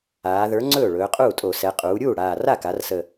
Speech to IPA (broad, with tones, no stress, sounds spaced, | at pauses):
aː˩˧ ð ə˞˨˥ ŋ͡ǀ ɵː˥˩ ɭ ɵː˩˧ qʼ uː˥˩ tʼ o˧˩˧ s ɛ˩˧ qʼ uː˩˧ ɾʲ uː˥˩ ɽ aː˨˩ r a˥˩ k a˩˧ r s ə˨˩